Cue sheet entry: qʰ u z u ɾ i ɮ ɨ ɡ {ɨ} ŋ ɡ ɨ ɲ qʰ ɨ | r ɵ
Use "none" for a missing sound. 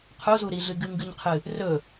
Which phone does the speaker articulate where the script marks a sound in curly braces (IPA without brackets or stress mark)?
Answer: ɨ